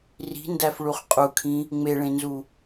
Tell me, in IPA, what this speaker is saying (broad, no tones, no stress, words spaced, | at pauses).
ri̤ndæfɭuχ qʼukʰĩ | ŋ͡meɭẽnzu